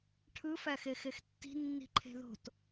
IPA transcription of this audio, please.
ʈʰɯfæxe xextːi̤ nːi̤ǃʰe̤ðo̤t

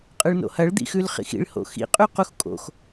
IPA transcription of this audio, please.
qʼɯɭno̰hɐɭ d̪ḭxʉlχḭxḭɭ ho̰xḭ qʼʉquxkʼo̰x

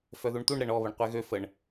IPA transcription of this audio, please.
fœðuɳt̪uɳ ɾɛɳɔ βəɳqʷɛɣø fəɳ

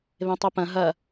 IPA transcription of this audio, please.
βẽtˤupɐ̃ ɦɐ

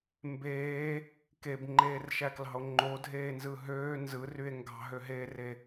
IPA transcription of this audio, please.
mbeː | kebŋ͡ǃeːrʃæklɑ̤o̯ ŋ͡ǃodʱeːnzɯ ɦøː nzɯrye̯ ŋɡɑ̤ɦøɦeːre

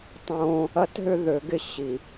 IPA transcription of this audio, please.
tˤõ˦ | ɐ˦tɦʏ˦ ðø˨˦ɡɪ˦˨ ɕi˨

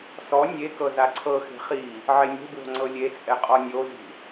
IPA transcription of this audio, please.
sɔ nʲekɤ zaǀʰɤxe̤ χi | ʕenʲe̤bwo̤ ŋ͡ǀɤlʲet͡sʼɛ qʼɔnʲozi̤

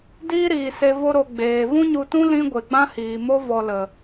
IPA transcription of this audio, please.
diː˦ɾiː˨se˧ vo˧ɾo˨ ɡ͡beː˨ vũ˦ɲu˧tũ˦ lĩ˦ ɡʷe˨ɡ͡bã˦hiː˨ mo˦ vɔ˧lə˨

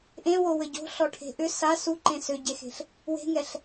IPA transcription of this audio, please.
ʔẽwo wɘɟo̤ ɬɔʈʰe̤ʔʏ sa suǃẽ sʏɟexe̤ɬ | we̤ŋɛɬ

